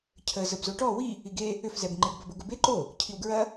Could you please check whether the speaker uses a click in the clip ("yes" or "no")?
yes